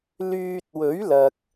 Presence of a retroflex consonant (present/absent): absent